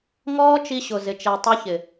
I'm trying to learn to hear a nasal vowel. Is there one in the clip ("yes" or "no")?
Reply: no